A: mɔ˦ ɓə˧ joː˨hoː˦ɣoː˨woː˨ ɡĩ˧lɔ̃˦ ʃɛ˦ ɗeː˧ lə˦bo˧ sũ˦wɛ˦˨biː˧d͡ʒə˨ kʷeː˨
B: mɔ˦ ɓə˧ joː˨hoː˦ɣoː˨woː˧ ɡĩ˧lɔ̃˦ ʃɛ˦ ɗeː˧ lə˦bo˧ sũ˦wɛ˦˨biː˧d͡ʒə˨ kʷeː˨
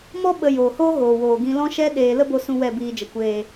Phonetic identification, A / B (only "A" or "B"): A